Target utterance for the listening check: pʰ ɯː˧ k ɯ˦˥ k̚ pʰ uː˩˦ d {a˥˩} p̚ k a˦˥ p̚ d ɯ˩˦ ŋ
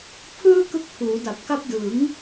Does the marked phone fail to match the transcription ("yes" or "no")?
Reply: yes